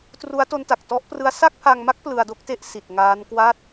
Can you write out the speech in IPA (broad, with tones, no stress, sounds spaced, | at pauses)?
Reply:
t r u˦˥ a̯ t o˦˥ n t a˨˩ k̚ t ɔ˦˥ ʔ p r ɯ˦˥ a̯ s a˥˩ k̚ pʰ a˧ ŋ m a˥˩ k̚ p l ɯ˧ a̯ d o˥˩ k̚ t e˥˩ ʔ s i˨˩ t̚ ŋ aː˦˥ n k w a˥˩ t̚